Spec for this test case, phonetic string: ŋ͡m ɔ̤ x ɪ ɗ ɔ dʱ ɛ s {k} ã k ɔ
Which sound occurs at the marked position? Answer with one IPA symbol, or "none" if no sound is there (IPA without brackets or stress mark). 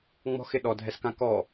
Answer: k